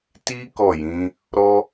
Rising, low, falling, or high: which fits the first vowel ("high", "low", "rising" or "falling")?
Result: high